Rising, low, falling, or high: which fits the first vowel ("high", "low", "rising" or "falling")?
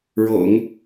low